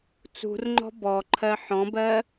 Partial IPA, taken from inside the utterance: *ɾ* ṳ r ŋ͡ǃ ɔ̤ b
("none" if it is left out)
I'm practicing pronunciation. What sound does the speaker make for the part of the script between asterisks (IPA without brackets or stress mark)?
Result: t͡s